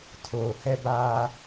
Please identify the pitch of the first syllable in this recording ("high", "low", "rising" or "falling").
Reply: low